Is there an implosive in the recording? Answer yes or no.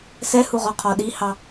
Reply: yes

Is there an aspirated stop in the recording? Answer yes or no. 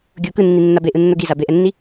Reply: no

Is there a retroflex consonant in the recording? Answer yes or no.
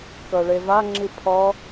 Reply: yes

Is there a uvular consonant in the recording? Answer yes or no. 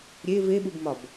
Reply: no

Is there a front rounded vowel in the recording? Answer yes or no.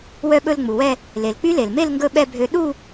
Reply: yes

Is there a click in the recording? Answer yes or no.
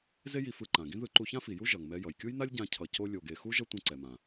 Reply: yes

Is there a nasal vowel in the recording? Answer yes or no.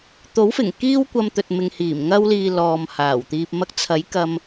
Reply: no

